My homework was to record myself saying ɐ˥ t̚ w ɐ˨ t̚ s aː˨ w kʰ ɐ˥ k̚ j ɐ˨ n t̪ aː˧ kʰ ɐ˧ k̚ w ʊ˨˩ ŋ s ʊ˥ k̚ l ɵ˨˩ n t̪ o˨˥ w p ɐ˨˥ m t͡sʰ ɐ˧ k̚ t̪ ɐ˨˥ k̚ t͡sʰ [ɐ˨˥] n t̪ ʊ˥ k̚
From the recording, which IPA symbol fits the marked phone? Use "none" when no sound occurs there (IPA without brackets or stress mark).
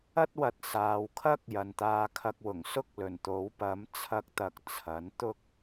ɐ˨˥